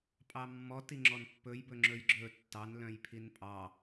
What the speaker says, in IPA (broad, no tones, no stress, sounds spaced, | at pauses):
pʼ ɑ mː ɔ t i ŋ͡ǁ ɔ n pː ɵ j b ɵ ŋ͡ǁ ɵ j ɡ͡ǁ ɵ tː ɑ n l œ̃ j pʰ i n pʼ ɑ